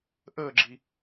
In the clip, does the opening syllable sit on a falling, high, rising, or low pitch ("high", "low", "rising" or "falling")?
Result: falling